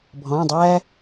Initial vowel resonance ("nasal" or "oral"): nasal